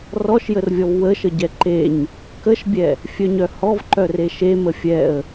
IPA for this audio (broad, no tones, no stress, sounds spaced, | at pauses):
r ɔ ʃ j ə r vʲ ɔ v w ə ʃ ə ɟ ɛ ǃ e ɲ | k ə ʃ bʲ ɛ | fʲ œ ɲ œ h ɔ v ǃ œ r e ʃ e m ə fʲ ɛ ə̯